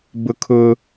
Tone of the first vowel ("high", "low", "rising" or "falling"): high